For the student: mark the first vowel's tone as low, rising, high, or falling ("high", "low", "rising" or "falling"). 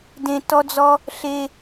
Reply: low